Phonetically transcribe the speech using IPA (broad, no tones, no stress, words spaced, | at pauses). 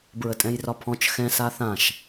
bɹətʼɛ̃jrɒpʰɔ̃t͡ʃ xɛ̃ saθãʃ